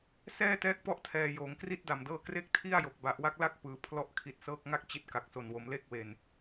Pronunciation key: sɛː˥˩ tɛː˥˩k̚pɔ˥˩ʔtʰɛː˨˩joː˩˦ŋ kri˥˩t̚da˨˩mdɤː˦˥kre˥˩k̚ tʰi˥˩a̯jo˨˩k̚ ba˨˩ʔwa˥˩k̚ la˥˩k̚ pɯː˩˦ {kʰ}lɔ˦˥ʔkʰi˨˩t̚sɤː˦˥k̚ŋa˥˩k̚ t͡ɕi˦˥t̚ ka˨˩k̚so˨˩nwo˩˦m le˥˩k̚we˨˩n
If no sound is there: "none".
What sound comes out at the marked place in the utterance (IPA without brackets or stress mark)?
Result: pʰ